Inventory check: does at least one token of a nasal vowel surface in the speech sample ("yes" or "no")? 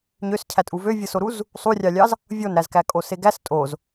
no